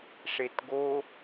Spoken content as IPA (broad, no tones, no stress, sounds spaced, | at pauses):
ʂ e t ɡ o